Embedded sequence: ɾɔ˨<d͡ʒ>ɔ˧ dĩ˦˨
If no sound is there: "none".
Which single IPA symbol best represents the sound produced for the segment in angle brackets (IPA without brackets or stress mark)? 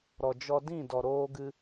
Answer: d͡ʒ